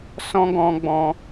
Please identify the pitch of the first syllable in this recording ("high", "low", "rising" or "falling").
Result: high